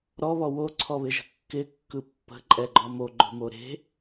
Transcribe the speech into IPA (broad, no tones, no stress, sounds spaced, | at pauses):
ɾ ɔ β ɔ w o ǀʰ ɔ β ɪ ʒ ə̤ kː ɪ kː ɯ pː ə̤ ǃʼ ɛ ɡ͡ǃ ɔ m o ɡ͡ǃ o̤ m o ɾ e̤